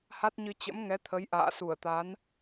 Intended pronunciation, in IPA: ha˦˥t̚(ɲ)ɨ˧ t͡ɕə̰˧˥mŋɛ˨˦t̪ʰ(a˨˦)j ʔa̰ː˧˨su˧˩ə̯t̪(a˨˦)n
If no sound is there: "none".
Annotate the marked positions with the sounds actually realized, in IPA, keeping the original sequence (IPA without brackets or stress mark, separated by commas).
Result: ɲ, ə˨˦, a˨˦